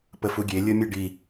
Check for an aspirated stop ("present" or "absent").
absent